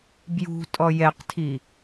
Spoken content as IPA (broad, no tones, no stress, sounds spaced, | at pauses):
b j ṳ tʼ ɔ j ɛ q tʰ i